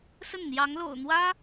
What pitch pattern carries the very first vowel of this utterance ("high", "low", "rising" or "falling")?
falling